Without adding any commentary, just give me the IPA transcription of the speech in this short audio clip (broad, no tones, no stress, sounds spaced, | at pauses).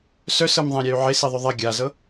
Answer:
s œ s ɤ m ðˤ ɛ̃ ɾʲ ɛ y̯ ʕ e s i ðˤ ʏ ðˤ ɛ ɡʲ a z ɤ